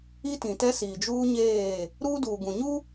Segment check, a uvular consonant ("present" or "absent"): absent